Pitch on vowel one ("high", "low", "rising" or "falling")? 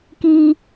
high